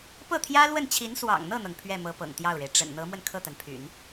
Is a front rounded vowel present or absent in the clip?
present